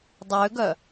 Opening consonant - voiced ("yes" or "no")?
yes